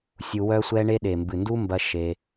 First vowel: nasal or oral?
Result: oral